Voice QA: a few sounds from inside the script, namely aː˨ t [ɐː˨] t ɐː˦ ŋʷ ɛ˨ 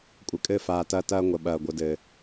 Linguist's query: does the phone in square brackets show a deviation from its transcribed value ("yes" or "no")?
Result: yes